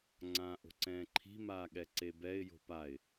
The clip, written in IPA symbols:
ŋ͡ǀ ãː ʔ o̤ ǀ ɛ̃ː ǃʰ i̤ m aː ɠ ɛ ǀ e b ɛ ɪ̯ j o̤ p a ɪ̯

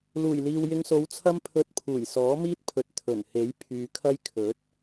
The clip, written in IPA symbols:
l uː˨˩ j l iː˨ w j ɪ˧ ŋ s o˨˧ w t͡sʰ ɐ˥ m pʰ ɵ˧ t̚ pʰ uː˨˩ j s ɔː˨˥ m iː˥ t̚ pʰ ɵ˨ t̚ t̪ʰ ɵ˨˩ n h e˨˥ j pʰ yː˨ kʰ ɐ˥ j kʰ ɵ˨˥ t̚

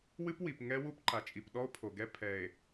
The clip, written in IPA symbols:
w ɨ˦ p w i˨ p ŋ ɛ˦ w u˦ p ǃ a˨ t͡ʃʼ i˨ p ɗ ɔ˦ o̯ pʰ o˨ ɡ ɛ˦ pʰ ɛ˨ e̯

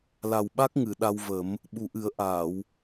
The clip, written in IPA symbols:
l a˨˩ w ɓ a˦˥ k̚ ŋ ɨ˨˩˨ ɗ a˧ w v ə˨˩˦ m | ɓ u˨˩ ʔ ɨ˨˩˦ ə̯ ʔ aː˨˩˨ w

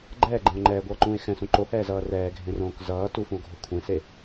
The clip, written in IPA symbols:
ɡ͡ǃ ɛː ɡ͡ǃ ẽ o̯ ŋ͡ǃ ɛː ɡʷ ʌː ǃ ũː e̯ x ɛ̃ s ũ ǃ o h ɛː z ʌː r ɛː ɡʱ ẽ r õː k z ʌː t u f ũ o̯ ɡʱ o kʷʰ ẽ s e

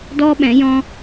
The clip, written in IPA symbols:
d ɔ˦ ɓ ɛ̃˨˦ j ɔ̃˦

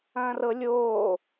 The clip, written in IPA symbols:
ɐ̃ː r ɤ lʲ oː

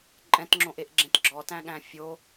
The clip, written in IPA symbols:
ǃʼ ɛ̃ t ŋ͡ǁ õ ʔ e ʔ ɡ͡ǁ ẽ t ɡ͡ǁ ɔ t æ̃ ɠ æ̃ fʲ o

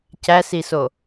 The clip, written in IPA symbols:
c æ s i s o

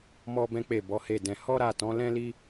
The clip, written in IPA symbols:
m ɔ˦ b ɛ̃˦ k͡p e˦˨ b ɔ˨˦ h e˦˨ d ɛ̃˧ h ɔ˦ ɾ a˦˨ t ɔ̃˨˦ l ɛ̃˦ l i˦

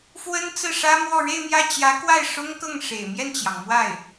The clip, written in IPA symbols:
f w ə˥ n t͡s ɹ̩˥˩ ʂ ä˥ m w ɔ˥˧ ɻ e˥˧ ɪ̯ m j ä˥˩ t͡ɕ j ä˧˥ k w a˥˩ ɪ̯ ʂ ʊ˥ ŋ k ɤ˥˩ ŋ ʂ ḛ˨˩ ɪ̯ m j ɛ˥˩ n t͡ɕ j ɑ˩ ŋ m w a˥˩ ɪ̯

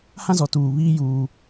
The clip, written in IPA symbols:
h ã˦ z ɔ˨ t uː˨ β iː˦ j uː˦

